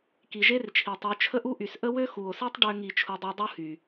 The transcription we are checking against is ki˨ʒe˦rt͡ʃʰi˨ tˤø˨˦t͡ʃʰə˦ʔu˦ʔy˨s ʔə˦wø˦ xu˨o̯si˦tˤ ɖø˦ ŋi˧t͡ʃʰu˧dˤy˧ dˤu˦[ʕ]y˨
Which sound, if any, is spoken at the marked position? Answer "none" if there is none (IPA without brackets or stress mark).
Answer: h